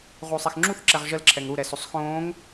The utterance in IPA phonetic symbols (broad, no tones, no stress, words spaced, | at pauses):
ʁuːsˤɛxŋ͡ǁuθ ǁɛʁʒəl ǁʰɛŋɾu ɾɛsosˤxõːŋ